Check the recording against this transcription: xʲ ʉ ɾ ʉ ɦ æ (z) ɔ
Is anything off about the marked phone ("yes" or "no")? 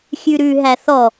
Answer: yes